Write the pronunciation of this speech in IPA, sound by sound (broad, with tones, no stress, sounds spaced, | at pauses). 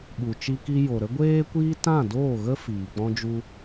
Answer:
ɓ u˨ t͡ʃ i˧ k i˧ j o˨ ɾ ə˦ ɡʷ eː˦ kʷ iː˦ t ã˦˨ d oː˦˨ ɣ ə˦ f iː˨ k͡p ɔ̃˦ d͡ʒ u˦